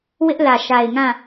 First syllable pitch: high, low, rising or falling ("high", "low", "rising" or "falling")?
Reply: high